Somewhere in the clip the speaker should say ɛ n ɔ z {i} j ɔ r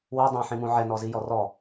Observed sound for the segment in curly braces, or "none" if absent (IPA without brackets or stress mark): i